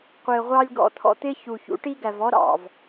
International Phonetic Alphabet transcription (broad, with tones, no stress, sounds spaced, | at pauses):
qʷ ɪː˨ ʁʷ ɑ˧ lʲ ɡ ɔ̰˧ t̪ʰ ɔ̰˧ t̪ ɪː˦ ç u˨ ç ṵ˨˦ ʈ i˦ ɡ æ˨ v ɔ˦ ɾ ɑ̰˨ v